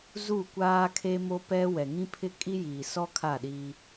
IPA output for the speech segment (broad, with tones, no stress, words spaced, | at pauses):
zu˦˨kʷaː˦kʰe˦ mo˦pɛ˦ wɛ˨ŋĩ˦pʰɪ˦kʼi˦ jiː˨sɔ˦kʰa˦˨ɗiː˦